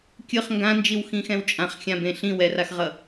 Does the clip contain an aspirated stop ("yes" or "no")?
no